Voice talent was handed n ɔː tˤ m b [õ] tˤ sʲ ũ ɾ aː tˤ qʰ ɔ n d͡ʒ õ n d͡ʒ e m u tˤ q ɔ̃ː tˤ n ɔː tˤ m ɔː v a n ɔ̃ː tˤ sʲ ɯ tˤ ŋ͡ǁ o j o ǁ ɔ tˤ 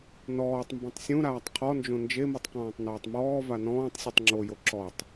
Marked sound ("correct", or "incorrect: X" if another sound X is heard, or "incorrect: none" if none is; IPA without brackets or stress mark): correct